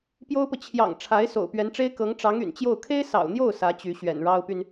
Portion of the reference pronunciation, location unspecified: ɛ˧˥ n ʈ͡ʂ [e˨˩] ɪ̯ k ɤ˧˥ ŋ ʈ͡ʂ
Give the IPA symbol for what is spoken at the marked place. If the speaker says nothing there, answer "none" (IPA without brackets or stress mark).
e˥